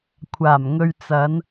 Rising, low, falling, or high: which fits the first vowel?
low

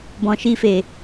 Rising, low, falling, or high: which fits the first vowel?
low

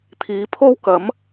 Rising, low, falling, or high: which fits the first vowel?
rising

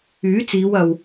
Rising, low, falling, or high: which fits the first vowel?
rising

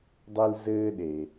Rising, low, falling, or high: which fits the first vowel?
high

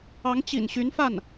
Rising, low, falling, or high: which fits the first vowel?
rising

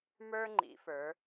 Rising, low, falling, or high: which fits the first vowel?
high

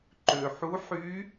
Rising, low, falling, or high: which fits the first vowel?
low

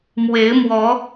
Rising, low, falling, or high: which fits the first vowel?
rising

